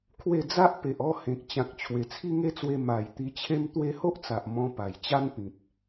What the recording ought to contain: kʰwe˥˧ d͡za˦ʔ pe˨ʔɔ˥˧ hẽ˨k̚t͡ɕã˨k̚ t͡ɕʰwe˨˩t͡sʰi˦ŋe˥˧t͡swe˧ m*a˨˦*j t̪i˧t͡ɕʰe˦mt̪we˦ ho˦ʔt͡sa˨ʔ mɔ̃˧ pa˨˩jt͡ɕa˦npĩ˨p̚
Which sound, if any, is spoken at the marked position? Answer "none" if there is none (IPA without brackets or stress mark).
a˨˩